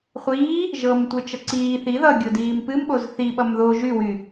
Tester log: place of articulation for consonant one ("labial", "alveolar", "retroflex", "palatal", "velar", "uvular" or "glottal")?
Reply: uvular